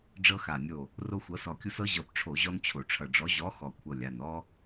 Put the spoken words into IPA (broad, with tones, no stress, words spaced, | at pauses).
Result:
ɖ͡ʐɤ˦xa˧˩nʲo˧˩ | ro˦xʷɤ˨˥sɔ˧˩kʲu˦s ɤ˦ʑɤ˧˩pʈ͡ʂʰo˧˩˧ ʑɔ˦nt͡ɕʰo˧˩˧ʈ͡ʂʰʌ˧˩ɖ͡ʐɔ˨˥ ʑɔ˨˥ xɔ˧˩kʷʰɤ˧˩lʲa˧˩nɔ˦